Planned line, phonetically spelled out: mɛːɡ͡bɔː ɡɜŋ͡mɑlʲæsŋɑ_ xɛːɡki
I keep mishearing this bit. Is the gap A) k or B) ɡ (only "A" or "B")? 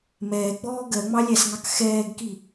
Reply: A